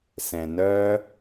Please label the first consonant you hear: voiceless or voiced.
voiceless